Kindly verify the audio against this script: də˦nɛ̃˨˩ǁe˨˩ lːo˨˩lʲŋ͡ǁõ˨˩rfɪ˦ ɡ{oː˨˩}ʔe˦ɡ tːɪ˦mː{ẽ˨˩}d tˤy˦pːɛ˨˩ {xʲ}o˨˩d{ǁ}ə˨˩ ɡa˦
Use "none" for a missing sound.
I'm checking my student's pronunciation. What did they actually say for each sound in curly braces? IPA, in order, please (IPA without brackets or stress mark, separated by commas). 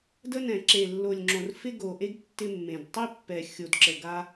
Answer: o˨˩, ẽ˨˩, xʲ, ǁ